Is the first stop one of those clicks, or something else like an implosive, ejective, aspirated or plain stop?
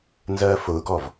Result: plain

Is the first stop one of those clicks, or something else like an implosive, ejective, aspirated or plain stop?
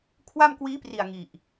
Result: aspirated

